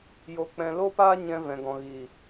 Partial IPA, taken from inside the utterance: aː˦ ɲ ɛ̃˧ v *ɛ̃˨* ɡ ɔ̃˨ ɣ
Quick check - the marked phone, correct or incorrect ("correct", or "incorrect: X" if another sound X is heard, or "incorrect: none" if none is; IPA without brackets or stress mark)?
correct